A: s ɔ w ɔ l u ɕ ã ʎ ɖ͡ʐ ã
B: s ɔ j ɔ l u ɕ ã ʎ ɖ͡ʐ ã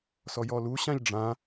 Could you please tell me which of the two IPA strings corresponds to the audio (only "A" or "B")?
B